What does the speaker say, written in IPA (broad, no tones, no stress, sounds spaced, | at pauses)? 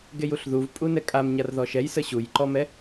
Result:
ɡ e j u ɬ ð u v pʼ u n ɛ kʼ a m ɲ a r ð ɔ ʃ ɛ j s ə ɕ u j ǃ ɔ m ɛ